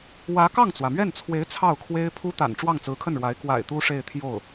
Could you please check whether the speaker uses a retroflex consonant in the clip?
yes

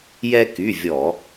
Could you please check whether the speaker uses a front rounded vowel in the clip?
yes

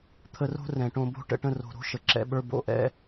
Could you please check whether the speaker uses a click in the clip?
yes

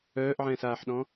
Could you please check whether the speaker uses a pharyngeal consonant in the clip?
yes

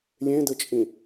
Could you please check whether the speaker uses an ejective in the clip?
yes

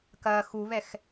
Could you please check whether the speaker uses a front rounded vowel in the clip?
no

